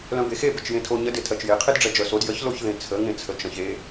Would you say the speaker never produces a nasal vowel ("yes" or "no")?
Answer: no